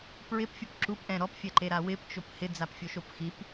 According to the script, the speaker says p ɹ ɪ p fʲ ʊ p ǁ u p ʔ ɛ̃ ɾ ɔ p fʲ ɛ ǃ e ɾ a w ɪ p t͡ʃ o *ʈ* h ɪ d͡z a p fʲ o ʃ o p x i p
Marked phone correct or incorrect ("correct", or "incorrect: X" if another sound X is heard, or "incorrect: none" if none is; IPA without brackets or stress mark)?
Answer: incorrect: p